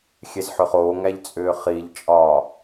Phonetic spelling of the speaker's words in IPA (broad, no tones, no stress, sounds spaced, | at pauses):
xʲ e z ħ ʏ χ oː ŋ æ ʎ t͡sʼ ʏː χ i ʎ t͡ʃʼ ɒː